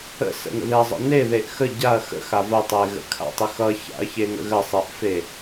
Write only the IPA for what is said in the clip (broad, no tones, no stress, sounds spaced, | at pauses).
ə̰ s ə̰ n ə̰ ð e ɐ̯ zˤ ə̰ n e ð e ʔ x ə ɟ a ɐ̯ x ə̰ x a v ə tˤ e ɣ ə̰ kʰ a̰ tˤ ə x ʌ ç a̰ ɐ̯ ç e ŋ ə̰ ɣ ə sˤ e ʔ f e